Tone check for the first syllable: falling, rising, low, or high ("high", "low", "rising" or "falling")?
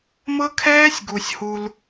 high